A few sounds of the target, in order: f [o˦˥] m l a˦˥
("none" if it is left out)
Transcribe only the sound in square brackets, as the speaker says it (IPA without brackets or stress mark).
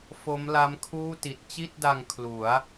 o˦˥